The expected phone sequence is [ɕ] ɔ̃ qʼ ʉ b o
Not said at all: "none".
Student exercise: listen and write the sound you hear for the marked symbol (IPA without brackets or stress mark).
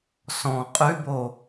s